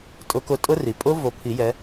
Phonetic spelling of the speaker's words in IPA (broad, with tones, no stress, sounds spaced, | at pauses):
tʼ ʊ˨˦ k ʊ˨˦ tʼ ʊ˦˥ r i˩ pʼ ʊ˦˥ v o˨˦ pʰ i˨˩˦ j ɛ˨˦